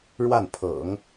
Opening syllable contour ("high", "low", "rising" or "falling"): falling